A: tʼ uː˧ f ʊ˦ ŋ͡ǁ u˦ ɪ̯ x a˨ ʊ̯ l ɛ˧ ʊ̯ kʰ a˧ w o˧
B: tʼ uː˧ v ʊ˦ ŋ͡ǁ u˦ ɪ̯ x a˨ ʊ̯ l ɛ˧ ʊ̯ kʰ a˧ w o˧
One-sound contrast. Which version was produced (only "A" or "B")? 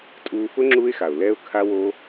A